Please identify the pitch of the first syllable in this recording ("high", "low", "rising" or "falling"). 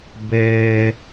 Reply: low